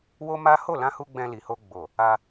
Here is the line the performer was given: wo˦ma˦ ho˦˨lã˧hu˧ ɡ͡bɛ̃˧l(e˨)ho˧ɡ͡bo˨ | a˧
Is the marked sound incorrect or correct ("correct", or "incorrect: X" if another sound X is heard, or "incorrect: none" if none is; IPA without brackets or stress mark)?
incorrect: i˨